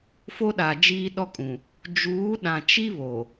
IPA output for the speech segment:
fo˦ɗa˨ d͡ʒiː˦ɗɔ˦kʼũ˨ | d͡ʒuː˨˦ɗã˨ t͡ʃi˦ βo˨

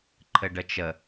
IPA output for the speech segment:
ǃʰɘɖət͡ʃə

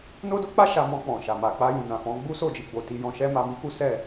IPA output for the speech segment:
no˦do˦k͡pa˦ ʃa˧mɔ̃˧k͡pɔ̃˨ ʃa˨ma˨ k͡pa˧jũ˨ nã˨fɔ̃˨˦ ɡ͡bu˦so˦˨d͡ʒi˧ ɡ͡bo˨ti˧ jɔ̃˦ ʃɛ˦ma˧mi˦ ku˦sɛ˦˨

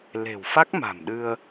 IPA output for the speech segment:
le̤˨˩w fa˦˥k̚ma̤˨˩mɗɨ˧ə̯

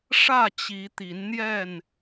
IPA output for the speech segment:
ʂä˥˨t͡ɕi˨˦t̪i˨˦nn̪jɛ˥˨n

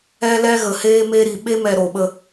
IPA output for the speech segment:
ɛ˧lɛ˧ɣə˨heː˧ me˧ɾi˨ ɓe˧mɛ˨ ɾo˨ɓə˧

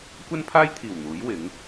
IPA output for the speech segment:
kʷɐ˥npʰaː˥jt̪ʰiː˨˩w n̪uː˨˥j wɪ˨˥ŋ

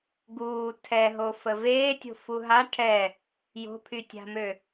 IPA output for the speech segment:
ɡuː tʰɛɦofə veːtʲo̤ fuɦa ʈʰɛ | jo̤pʰytʲa̤mø

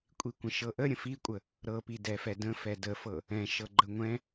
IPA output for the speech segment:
kʷʼikʷə̃ʃɤʔə ɾʲə̃fikʷʼə | ɾɤpidɛfɛ də̃ fɛdəfɤ | ɛ̃ʃɤɡ͡ǃə ŋʷɛ̃

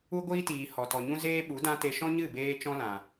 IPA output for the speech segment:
u˦ɡʷiː˦tiː˨ hɔ˨tɔ˨ɲũ˦ zeː˦ɓu˨˦dã˦ te˧ʃɔ̃˦ɲɨ˦˨ beː˦ t͡ʃɔ̃˦lã˨

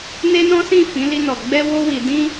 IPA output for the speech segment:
ne˦nɔ̃˦sĩ˦˨ fĩ˨˦li˧nɔ˨ ɡ͡bɛ˧wo˧wi˨ dĩ˧

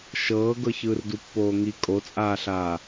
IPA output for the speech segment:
ʃɤːɡɤ çɯːrdupːoːŋi kʼot͡sʼaːɬaː

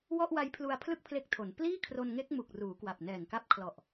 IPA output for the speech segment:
wɔ˥˩ʔwa˦˥jpʰlu˧a̯ pʰlɯ˥˩k̚pʰle˦˥k̚tʰo˩˦n pliː˥˩kʰro˧nŋe˦˥k̚mu˨˩k̚ ruː˩˦kwa˨˩p̚nɛː˨˩ŋka˦˥p̚ kʰlɔ˨˩ʔ

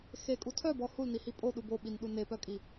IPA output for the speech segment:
xekʼu tʰœbɔ hulnihi pʼoɗub oɓinɗu nepœkʼi

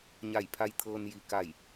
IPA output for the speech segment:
ɲa˧˩jpʰa˧j t̪ʰɤː˧nji˧˩ ka˧˩j

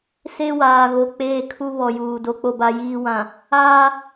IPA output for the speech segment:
se˦waː˨ ɣo˨ k͡peː˨kʰu˨ βɔ˨juː˨ do˨k͡po˨ba˨ jiː˨wã˨ | aː˦

